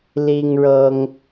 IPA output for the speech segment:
li˦ŋɻɤ˦ŋ

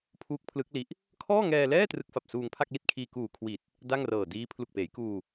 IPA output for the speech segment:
pʰuː˦˥k̚pʰlɯ˦˥k̚ li˦˥ʔ | kʰɔː˥˩ŋɛː˧lɛː˥˩ trɯ˦˥k̚fa˨˩p̚ suː˧ŋpʰa˥˩k̚li˥˩t̚kʰiː˧ kuː˨˩kʰwi˨˩t̚ | da˥˩ŋrɤː˨˩diː˦˥ pʰlu˨˩k̚peː˩˦jkuː˧

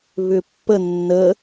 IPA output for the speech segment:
βʏpːə nːə

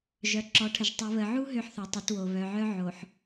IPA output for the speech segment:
ʒœ˨ǁɔ˨˦ʈʰə˨ʒ tˤɨ˨βə˨ʕu˦ ɦø˦ħθø˨tˤə˨˦two˨ βœ˨ʕœ˦ ʕo˨ħ

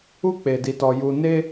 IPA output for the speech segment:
u˧k͡pe˨di˨tɔ˨ ju˨ne˧

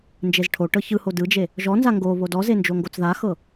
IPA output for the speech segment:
nd͡ʒezʈʰo ʈɤçɯho dɯd͡ʒe | ʒɔnza ŋɡoβo dɔzend͡ʒo ŋɡot͡sðaxɤ

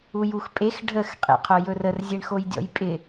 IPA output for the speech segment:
ujuxpʼex ɖʱəx qʼḛqʰojɵrər zʲeɳxojdʲɔ̰jpʼɪ

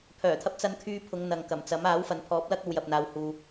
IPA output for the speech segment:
pʰœː˨˩t̪ʰɐ˧p̚ t͡sɐ˧nkʰyː˧ pʰʊ˨˧ŋn̪ɐ˨ŋkɐ˨˩mt͡sɐ˨˥m aː˨˥wfɐ˨npʰɔː˨˥p̚lɐ˥k̚ ɐ˧wjɐ˨p̚n̪aː˨whuː˨

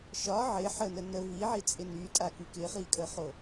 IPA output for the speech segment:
ʃɒ ʕɪ ħənə nə viʕit͡sʼɪ nytʼaky kɪχikʼəχo

